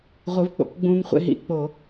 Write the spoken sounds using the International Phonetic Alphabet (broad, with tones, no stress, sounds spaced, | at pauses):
ʁʷ ɯ˨˥ v k͡p o̰˩˧ k ɡ͡b ũː˦ ŋ χʷ ḛ˦ ɦ ḭ˧˩˧ k͡p o˧˩˧